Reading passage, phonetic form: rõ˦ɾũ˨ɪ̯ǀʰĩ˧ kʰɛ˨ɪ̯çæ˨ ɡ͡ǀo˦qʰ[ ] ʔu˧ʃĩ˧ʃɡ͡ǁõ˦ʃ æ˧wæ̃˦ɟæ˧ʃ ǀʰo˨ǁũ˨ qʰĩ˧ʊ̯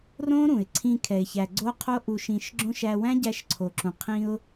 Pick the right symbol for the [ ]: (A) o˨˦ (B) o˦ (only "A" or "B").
B